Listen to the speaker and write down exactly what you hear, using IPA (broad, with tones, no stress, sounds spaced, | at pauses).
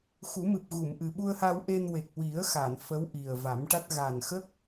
x u˨˩˦ m ɨ˨˩ p̚ ɣ u˨˩˨ m ʔ ɨ˨˩ ɓ u˧ ə̯ h a˧ w ʔ e˧ n w e˨˩ k̚ w i˨˩˦ ə̯ x a˨˩˨ n f ə˧˥ w ʔ i˨˩ ə̯ v a˨˩˦ m ʈ a˦˥ t̚ ɣ a˨˩ n x ə˦˥ k̚